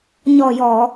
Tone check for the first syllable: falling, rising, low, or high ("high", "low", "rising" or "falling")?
low